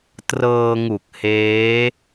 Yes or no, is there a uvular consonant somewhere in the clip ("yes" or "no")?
no